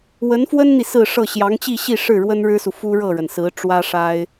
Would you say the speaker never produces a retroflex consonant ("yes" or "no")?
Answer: no